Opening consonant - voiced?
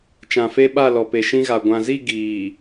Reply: no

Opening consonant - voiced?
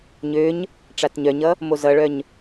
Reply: yes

